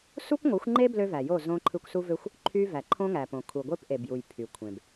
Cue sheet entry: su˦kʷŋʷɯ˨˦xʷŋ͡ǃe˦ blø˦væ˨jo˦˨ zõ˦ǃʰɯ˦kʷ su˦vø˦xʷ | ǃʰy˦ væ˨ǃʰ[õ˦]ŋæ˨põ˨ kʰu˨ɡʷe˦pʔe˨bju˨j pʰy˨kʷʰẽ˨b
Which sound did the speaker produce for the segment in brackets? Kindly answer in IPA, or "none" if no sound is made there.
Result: õ˦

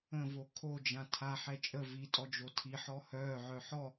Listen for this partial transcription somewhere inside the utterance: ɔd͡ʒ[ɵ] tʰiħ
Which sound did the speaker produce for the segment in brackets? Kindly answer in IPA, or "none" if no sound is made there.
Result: o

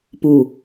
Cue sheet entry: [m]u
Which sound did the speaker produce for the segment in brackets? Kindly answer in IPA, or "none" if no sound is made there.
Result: p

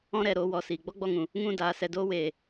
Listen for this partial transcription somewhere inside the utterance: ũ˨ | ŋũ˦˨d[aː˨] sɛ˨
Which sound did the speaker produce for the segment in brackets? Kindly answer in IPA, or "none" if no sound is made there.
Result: aː˨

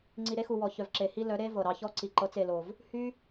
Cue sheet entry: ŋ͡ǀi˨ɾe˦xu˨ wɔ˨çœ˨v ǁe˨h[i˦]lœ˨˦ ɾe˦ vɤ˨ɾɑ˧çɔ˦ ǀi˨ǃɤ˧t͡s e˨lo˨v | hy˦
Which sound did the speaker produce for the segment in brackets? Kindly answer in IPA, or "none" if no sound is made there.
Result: i˦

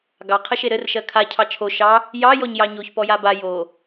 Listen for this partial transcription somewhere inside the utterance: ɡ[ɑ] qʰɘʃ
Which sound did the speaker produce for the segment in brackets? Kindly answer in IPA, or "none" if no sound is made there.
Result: ɑ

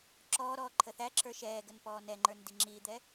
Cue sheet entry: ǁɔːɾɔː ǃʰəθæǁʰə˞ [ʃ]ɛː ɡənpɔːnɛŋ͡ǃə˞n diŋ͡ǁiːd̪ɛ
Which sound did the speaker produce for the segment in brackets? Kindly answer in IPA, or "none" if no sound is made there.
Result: ʃ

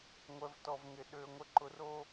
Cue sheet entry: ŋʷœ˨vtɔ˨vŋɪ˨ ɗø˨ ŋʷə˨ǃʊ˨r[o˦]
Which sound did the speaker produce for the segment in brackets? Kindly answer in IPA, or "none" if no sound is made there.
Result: o˦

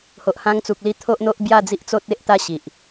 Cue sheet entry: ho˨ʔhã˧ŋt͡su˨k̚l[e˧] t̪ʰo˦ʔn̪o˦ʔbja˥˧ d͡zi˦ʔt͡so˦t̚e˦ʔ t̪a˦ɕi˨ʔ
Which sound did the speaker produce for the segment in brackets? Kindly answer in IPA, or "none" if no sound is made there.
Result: i˧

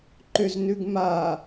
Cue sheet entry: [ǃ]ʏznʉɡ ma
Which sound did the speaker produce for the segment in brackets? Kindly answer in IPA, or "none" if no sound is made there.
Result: ǃ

